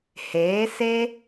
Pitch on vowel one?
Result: rising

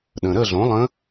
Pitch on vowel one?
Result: low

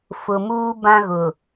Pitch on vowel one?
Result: low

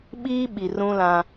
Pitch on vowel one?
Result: high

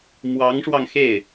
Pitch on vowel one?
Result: rising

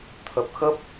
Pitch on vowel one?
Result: low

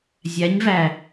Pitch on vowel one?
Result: rising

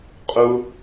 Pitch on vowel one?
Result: high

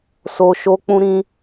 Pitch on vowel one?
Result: high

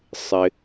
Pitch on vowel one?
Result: low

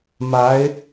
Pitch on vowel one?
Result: rising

